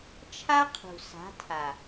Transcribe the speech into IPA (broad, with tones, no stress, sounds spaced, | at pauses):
t͡ʃʰ a˦ qʰ ṳ˨ s a̤˨˦ tʰ a˨